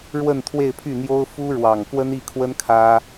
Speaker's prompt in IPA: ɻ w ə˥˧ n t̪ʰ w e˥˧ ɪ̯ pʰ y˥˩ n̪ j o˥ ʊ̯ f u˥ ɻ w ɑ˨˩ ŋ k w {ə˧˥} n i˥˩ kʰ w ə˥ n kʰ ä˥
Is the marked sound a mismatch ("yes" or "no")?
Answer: yes